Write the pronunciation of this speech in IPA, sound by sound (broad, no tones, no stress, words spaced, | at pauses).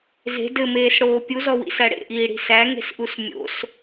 ze̤ dɘmeːsɽoː pʲuzɔwḭsæ ɽḛʔiːɽi̤ sæŋe̤sʔus mʲo̰s